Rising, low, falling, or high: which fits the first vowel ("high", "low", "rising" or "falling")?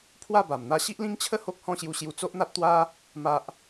falling